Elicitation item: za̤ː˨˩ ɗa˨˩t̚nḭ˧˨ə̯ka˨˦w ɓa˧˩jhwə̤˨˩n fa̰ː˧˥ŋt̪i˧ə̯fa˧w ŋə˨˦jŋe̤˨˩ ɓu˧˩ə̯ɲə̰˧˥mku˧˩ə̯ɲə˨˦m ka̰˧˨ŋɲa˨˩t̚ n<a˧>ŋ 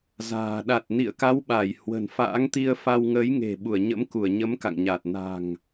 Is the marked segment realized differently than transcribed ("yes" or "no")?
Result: yes